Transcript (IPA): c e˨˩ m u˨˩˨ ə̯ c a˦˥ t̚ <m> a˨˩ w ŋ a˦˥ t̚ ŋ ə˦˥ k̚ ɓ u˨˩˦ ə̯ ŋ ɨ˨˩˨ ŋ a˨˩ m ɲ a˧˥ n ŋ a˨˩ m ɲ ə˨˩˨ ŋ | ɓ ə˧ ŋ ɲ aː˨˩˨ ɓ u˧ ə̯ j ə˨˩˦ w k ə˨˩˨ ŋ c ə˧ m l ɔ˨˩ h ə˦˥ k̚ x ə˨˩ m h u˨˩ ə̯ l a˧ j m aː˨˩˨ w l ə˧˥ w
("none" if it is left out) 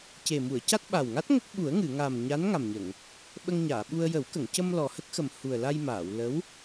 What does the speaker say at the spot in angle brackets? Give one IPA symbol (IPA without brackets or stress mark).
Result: ɓ